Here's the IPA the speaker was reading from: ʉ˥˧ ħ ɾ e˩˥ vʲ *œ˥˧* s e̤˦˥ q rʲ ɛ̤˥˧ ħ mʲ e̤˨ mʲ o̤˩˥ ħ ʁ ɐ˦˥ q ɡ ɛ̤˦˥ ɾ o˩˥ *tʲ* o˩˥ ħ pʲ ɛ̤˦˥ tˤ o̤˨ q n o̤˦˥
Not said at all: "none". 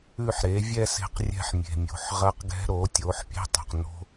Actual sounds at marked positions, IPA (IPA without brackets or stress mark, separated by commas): ɛ˥˧, tʲ